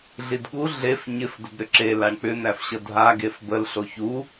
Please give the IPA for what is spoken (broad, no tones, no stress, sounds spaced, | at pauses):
ɮ i d ɠ u ɮ e f ɲ ɪ f d ə d ɾ ʏ ǁ e l a ɳ k͡p ʏ n̪ æ f ɕ ə dʱ a ɡ e f b ə l ɬ o ç u